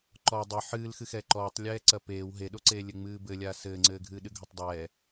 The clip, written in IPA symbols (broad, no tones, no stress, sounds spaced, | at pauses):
ǃ ɔ dˤ ɨ ħ ɨː l x ɨ x ɛː ǃ ɔː tˤ lʲ ɛː ǀ ɐ p eː w ɦ e ɗ o ǀ eː lʲ ɘ ŋ͡m ɨː b ɘ lʲ aː s ɘː ŋ͡ǀ ɘː ɡʱ ɨː ɗ ɨ ɡʱ o tˤ dˤ ɛː